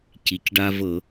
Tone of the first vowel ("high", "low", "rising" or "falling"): low